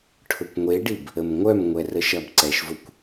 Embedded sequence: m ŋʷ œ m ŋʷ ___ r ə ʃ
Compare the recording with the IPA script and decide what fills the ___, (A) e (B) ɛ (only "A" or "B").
B